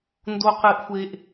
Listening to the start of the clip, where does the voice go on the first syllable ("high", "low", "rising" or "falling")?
high